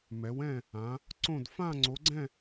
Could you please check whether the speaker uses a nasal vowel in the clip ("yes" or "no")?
yes